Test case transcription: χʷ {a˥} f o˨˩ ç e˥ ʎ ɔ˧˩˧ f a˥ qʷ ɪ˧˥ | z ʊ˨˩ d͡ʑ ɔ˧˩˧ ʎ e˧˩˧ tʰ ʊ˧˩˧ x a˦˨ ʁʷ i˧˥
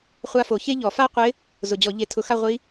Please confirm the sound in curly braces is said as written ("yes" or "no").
no